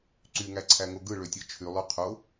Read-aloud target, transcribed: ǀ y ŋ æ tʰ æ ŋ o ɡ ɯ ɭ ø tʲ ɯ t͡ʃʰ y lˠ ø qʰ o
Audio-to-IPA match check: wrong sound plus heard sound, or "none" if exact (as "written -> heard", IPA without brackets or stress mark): tʰ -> ǀʰ